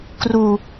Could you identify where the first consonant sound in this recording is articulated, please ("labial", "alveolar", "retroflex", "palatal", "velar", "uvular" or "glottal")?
velar